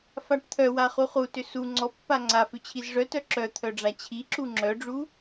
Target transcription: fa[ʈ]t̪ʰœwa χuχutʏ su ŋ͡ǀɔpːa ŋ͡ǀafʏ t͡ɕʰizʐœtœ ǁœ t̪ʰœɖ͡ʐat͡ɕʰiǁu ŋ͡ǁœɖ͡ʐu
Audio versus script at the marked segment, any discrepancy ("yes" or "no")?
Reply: no